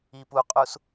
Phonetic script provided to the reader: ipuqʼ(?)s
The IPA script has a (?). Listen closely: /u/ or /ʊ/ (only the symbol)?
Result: u